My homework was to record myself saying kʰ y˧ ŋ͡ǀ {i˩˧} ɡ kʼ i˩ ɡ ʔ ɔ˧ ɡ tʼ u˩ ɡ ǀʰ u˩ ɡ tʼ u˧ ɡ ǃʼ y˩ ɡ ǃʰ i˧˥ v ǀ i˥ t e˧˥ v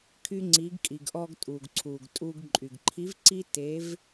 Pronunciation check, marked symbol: correct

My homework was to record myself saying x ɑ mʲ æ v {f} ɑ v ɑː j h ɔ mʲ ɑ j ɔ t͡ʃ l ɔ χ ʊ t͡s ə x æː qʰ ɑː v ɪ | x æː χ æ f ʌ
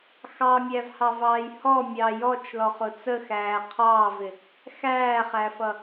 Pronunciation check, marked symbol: incorrect: h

